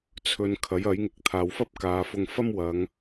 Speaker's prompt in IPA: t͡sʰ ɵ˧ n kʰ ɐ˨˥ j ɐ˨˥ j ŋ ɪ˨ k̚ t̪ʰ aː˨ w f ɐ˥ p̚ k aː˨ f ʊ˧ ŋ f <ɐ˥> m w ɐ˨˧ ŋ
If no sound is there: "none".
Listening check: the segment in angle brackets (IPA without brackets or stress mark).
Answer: ɐ˥